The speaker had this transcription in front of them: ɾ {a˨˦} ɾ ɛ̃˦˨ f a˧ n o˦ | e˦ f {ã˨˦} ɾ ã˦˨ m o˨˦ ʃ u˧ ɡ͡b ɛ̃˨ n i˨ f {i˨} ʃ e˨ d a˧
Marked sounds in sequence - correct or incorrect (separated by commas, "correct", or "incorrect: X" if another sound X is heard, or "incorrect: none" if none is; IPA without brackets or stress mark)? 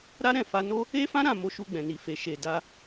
incorrect: a˦, incorrect: ã˦, incorrect: e˨